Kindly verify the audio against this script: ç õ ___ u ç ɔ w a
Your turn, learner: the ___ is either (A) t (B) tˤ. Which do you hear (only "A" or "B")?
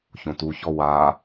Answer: A